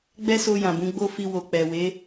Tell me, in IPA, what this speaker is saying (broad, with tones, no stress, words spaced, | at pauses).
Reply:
ɡ͡bɛ˦so˧ jã˨bũ˨˦ ɡ͡bo˦fi˧ wo˨k͡pɛ˨we˨˦